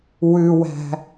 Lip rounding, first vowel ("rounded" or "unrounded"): rounded